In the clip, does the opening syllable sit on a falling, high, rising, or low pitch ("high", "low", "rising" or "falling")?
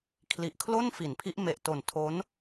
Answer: low